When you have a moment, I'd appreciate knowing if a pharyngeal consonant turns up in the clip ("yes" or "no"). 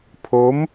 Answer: no